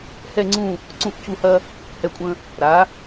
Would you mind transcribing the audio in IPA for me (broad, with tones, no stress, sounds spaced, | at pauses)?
h ɛ˥˧ ŋ͡ǀ ũ˥˧ | ǀ ũ˧˩ ʔ c u˧˩ h ɐ˧ | h ɛ˧˩ kʷʼ ə̃˧ | ɾ a˩˧